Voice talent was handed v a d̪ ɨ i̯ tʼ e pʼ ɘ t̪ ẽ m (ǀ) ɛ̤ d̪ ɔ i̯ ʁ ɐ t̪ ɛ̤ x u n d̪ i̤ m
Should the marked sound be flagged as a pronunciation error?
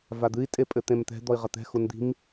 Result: yes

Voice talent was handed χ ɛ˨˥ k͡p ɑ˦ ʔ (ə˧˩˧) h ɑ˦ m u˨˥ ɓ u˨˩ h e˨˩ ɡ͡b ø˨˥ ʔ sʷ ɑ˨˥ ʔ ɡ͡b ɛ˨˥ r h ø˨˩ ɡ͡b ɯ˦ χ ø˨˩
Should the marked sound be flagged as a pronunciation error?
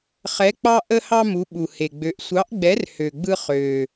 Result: yes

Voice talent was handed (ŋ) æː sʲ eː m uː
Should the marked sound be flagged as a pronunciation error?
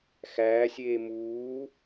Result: yes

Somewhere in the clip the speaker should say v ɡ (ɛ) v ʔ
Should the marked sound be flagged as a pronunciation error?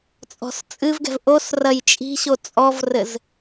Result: yes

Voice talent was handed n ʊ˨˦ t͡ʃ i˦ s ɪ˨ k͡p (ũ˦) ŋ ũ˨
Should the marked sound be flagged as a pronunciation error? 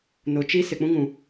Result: no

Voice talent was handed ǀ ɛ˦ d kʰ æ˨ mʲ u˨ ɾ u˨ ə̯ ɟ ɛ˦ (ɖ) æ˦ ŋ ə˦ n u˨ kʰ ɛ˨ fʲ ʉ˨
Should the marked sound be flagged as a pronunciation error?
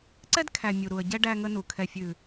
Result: no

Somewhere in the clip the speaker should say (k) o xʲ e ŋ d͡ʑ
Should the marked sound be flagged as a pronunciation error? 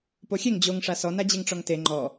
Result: yes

